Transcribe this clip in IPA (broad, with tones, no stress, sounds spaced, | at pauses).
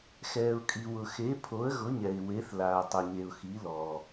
x ɛː˨ ʊ̯ kʼ i˨ w ʊ˨ x e˨˥ pʰ o˨˥ ə̯ ɣ ʊ˨˥ ɲ ɛ˨ ɪ̯ w e˨˥ θ l aː˨ tˤ ʊ˨ ɲ e˨ ʊ̯ x i˨˥ l ɔː˨